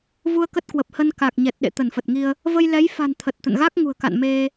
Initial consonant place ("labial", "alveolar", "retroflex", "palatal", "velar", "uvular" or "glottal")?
labial